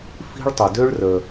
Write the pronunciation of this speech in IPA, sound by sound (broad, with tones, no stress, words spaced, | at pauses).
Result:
fi̤˥ɭtˤə˧ dø˥ɭrə˧